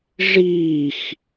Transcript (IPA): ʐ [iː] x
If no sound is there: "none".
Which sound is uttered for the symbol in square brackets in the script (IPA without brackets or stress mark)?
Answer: iː